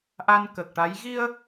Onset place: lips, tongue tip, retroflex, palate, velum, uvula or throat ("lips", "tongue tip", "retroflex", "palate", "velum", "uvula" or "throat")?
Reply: throat